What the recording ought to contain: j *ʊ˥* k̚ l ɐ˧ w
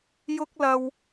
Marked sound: correct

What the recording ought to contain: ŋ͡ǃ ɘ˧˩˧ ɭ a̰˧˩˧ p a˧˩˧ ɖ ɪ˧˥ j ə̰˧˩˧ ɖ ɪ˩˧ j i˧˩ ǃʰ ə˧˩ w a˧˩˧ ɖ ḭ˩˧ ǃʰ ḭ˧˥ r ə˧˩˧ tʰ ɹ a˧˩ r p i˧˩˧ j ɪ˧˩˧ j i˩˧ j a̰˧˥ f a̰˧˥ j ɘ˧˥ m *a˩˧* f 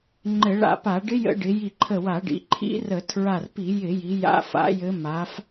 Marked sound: correct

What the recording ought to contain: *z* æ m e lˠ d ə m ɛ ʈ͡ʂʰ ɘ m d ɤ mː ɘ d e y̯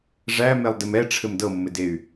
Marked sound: incorrect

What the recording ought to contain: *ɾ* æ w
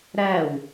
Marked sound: correct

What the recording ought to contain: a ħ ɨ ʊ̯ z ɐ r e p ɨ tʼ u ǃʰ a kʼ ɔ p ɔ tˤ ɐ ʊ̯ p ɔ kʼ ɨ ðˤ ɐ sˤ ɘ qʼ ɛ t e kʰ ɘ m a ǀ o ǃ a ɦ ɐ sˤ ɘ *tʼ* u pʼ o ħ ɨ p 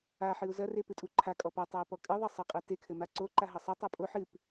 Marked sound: incorrect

